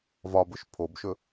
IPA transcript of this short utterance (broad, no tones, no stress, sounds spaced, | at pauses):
v ɒ b ɵ ʃ pʰ o b ʃ ɵ